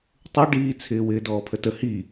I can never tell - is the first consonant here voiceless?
yes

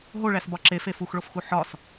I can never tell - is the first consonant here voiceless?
no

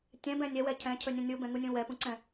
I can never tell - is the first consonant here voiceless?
yes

